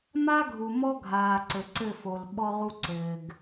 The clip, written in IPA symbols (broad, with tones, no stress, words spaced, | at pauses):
ma˦ɡʱu˨mɔ˦ɡʱaː˨ ǀɘ˨ǀɘ˦˨ fo˨l ɓɔ˦ʁu˦ ǀɘː˨ɡ